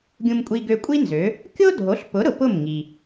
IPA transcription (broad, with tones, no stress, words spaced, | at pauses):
ɡʲũ˧mkʷʼi˧ɡø˧kʷʼi˥ nzø˩˥ | kʲo˥dʱo˩˥ɬpʊ˩˥ ɾʊ˩pʊ˥˩mŋi˩